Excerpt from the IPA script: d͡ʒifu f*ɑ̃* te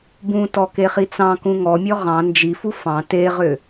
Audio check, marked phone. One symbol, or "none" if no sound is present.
ɑ̃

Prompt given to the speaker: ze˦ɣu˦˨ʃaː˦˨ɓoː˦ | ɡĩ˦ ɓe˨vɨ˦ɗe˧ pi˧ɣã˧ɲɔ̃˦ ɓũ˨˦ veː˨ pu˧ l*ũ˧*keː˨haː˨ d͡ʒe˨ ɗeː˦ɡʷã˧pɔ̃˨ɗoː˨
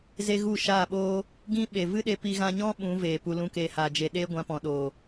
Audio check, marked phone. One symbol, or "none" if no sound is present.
ũ˧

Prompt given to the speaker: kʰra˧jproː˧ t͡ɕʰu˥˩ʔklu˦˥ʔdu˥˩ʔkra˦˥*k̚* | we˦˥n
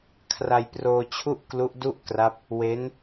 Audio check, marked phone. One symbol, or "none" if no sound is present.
p̚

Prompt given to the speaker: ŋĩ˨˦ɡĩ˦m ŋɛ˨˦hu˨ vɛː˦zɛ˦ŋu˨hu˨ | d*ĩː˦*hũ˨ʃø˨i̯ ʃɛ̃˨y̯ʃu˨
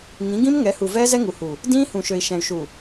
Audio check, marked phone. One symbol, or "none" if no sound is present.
ĩː˦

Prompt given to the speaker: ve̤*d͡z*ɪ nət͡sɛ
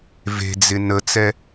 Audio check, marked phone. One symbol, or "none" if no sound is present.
d͡z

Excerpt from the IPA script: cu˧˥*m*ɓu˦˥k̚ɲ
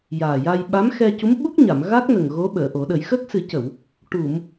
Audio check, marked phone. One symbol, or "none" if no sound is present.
m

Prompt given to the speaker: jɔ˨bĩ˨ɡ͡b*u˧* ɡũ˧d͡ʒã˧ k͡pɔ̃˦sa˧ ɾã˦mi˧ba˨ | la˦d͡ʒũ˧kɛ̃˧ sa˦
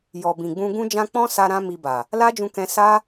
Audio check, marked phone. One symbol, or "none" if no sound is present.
ũ˧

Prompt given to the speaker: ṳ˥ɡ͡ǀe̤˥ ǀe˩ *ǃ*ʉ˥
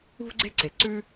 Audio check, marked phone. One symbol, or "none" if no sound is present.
ǀ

